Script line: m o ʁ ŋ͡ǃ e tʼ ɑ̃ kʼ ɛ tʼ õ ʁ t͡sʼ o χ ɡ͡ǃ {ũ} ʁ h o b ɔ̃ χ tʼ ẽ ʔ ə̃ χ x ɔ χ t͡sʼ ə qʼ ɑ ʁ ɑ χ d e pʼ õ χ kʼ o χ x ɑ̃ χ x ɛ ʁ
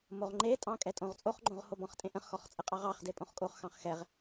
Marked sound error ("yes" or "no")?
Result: yes